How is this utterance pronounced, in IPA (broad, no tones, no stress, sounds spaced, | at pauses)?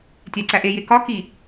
tʲ æ ǀ æ ʔ e j e k ɒ k i